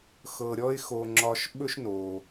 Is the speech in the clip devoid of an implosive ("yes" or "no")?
no